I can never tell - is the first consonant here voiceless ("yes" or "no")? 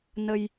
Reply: no